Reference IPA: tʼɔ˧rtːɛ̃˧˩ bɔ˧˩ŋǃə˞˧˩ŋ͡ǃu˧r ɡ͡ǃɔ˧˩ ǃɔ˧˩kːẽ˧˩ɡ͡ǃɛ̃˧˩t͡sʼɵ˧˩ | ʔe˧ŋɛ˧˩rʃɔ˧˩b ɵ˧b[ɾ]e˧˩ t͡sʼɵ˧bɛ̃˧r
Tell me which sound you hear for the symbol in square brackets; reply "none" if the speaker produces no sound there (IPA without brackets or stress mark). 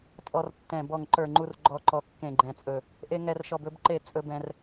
ǃ